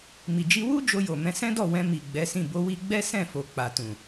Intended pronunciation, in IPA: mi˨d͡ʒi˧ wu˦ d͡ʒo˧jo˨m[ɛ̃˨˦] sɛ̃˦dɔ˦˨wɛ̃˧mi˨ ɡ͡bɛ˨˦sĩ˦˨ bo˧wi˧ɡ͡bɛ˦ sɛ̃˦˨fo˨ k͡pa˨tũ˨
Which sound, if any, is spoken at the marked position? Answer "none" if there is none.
ɛ̃˧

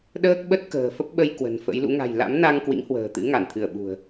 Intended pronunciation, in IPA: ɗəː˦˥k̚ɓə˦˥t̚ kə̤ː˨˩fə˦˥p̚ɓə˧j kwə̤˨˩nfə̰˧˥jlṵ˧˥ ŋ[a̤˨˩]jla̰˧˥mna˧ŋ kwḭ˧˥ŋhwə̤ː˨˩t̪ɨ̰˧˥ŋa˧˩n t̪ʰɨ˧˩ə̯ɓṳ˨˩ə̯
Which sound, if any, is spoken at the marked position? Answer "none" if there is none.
a̤˨˩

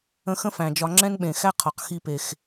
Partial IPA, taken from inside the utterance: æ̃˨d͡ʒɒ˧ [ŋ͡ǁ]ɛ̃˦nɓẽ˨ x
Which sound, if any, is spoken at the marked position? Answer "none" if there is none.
ŋ͡ǁ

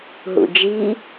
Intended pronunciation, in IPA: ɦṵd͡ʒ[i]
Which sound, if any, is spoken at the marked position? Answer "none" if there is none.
i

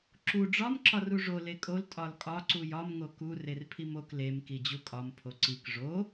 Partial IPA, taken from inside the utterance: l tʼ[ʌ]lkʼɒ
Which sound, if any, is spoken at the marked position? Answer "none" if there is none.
ɒ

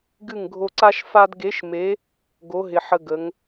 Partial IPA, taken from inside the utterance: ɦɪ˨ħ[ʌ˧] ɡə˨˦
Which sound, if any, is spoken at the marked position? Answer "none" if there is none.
ə˧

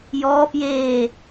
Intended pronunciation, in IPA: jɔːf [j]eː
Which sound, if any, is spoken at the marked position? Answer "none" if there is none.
j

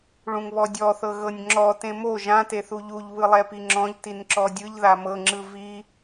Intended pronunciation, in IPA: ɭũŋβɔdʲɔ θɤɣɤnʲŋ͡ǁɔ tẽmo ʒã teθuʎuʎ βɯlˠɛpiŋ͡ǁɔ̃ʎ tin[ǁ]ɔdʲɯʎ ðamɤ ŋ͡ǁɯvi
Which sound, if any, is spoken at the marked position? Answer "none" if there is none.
ǁ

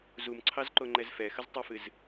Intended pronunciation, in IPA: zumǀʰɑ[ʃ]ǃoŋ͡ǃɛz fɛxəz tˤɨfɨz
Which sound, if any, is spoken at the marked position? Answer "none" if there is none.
z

